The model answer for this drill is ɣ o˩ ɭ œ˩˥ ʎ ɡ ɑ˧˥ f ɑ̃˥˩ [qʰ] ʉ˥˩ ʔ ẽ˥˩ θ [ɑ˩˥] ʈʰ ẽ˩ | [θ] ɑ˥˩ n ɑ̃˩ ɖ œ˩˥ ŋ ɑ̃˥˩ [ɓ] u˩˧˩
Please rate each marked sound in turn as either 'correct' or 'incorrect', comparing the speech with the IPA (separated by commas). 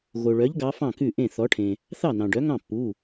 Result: incorrect, incorrect, correct, incorrect